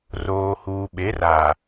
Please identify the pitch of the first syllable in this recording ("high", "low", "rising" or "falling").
low